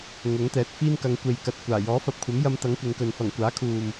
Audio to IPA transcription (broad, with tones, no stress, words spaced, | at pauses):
ŋʊ˨˥ŋt̪ɛː˨˥t̚fiː˥n kɐ˨˧ŋkʷe˨jkɐ˨t̚ kʷaː˨˩jɔː˨˥fɐ˨p̚kʷʰɐ˨˥m jɐ˧mt̪ɐ˨˥ŋ kʷɪ˨˧ŋkɵ˨n fɐ˨˩ŋ kʷaː˨˥kʰuː˨m